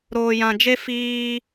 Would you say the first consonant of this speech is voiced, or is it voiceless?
voiced